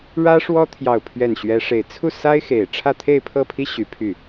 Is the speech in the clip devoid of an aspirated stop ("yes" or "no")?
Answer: no